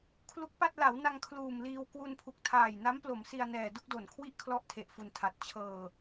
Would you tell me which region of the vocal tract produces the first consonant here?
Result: velum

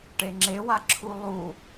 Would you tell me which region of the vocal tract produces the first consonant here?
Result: retroflex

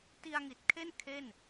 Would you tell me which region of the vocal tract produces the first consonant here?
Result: tongue tip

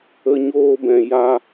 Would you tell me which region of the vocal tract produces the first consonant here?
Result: palate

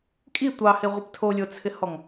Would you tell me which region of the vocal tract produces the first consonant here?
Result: velum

